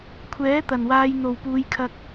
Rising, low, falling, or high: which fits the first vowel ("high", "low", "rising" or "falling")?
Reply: rising